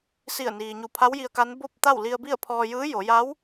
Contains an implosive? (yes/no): no